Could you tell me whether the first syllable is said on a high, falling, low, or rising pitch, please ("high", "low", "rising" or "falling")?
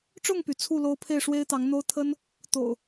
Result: falling